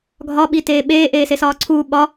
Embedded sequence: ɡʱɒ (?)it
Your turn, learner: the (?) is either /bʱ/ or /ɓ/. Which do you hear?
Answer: ɓ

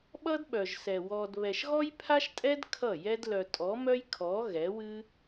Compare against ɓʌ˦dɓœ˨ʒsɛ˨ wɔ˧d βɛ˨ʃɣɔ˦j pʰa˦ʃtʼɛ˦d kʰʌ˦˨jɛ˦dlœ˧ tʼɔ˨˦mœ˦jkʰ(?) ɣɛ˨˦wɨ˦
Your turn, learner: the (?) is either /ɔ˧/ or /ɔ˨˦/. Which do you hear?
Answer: ɔ˨˦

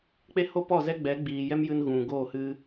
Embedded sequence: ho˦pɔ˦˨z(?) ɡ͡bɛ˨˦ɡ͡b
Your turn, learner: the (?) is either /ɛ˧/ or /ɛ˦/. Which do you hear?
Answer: ɛ˦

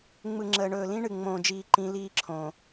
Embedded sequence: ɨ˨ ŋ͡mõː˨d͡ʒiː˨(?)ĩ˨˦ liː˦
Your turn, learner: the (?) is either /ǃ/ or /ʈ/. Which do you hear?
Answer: ǃ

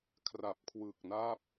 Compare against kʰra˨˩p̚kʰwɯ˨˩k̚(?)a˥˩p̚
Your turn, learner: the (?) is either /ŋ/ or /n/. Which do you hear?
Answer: n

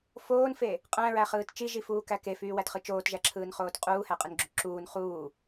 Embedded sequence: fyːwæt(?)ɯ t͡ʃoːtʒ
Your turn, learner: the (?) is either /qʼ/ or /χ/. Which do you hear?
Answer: χ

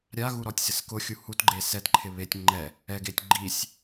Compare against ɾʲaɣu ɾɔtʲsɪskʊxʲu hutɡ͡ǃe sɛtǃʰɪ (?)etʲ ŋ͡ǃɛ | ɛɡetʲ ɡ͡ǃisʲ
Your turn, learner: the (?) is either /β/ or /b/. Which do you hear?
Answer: β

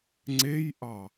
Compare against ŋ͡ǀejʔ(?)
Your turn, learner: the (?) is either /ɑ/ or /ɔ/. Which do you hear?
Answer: ɑ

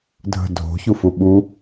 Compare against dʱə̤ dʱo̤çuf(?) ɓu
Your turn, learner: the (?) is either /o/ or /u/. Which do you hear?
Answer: u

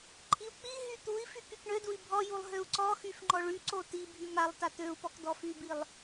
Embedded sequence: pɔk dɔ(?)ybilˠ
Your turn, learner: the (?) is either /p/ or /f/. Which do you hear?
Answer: f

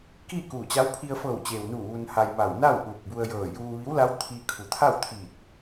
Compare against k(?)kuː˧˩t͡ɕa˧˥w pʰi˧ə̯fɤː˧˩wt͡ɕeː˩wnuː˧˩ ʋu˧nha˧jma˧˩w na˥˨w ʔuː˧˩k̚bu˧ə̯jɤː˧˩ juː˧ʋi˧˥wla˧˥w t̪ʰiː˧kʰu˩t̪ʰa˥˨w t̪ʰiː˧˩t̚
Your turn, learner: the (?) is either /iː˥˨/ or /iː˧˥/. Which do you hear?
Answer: iː˥˨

